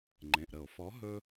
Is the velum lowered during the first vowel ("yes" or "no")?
yes